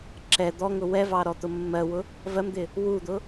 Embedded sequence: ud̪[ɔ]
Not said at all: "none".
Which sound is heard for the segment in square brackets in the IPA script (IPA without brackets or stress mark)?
ʊ